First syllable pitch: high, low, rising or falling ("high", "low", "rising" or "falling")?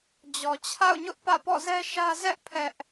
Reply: low